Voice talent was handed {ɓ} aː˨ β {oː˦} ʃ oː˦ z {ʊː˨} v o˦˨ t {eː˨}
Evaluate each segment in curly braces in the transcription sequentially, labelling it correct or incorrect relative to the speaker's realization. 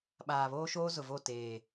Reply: correct, correct, incorrect, correct

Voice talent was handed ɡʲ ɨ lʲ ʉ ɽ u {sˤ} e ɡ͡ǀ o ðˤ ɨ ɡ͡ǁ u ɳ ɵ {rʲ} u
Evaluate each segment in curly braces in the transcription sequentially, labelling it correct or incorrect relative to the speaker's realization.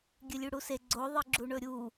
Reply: incorrect, incorrect

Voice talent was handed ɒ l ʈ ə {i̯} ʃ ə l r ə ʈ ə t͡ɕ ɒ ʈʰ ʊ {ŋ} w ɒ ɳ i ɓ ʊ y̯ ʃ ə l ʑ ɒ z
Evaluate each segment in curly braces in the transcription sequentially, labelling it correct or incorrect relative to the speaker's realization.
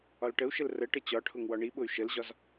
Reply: incorrect, correct

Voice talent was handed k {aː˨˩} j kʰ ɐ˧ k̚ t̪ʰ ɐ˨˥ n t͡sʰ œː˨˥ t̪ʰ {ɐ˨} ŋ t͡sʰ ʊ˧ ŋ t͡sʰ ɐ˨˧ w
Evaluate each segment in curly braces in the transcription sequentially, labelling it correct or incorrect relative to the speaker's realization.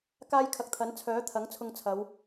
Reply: incorrect, incorrect

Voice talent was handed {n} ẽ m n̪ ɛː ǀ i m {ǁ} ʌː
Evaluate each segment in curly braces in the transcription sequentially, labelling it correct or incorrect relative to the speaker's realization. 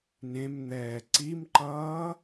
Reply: correct, incorrect

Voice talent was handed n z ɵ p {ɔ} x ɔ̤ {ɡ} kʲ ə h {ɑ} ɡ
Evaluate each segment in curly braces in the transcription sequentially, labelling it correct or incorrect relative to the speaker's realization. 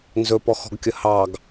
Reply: correct, correct, correct

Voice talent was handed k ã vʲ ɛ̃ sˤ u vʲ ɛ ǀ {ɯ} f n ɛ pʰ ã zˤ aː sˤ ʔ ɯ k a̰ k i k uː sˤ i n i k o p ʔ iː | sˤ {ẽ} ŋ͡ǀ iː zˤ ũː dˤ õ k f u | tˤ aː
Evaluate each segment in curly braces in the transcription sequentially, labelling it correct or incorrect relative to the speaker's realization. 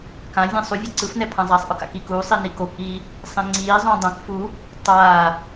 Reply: correct, correct

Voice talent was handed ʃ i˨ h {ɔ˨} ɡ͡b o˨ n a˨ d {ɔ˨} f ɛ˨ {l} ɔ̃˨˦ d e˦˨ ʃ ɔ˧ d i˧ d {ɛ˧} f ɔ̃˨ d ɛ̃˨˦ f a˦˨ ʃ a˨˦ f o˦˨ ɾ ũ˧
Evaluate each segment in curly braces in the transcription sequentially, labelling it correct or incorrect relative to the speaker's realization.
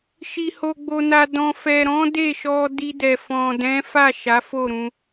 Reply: incorrect, incorrect, incorrect, incorrect

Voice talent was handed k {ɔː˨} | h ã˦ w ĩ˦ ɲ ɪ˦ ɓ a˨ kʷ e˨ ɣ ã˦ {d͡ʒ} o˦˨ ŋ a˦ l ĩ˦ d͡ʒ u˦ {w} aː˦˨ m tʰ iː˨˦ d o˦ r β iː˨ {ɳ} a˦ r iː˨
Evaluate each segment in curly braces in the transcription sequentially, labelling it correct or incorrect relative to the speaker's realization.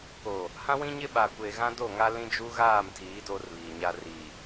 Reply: incorrect, incorrect, incorrect, incorrect

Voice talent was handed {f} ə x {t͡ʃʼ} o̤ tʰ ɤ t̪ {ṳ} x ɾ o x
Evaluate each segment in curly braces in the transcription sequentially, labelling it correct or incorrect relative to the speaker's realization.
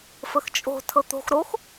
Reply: correct, correct, incorrect

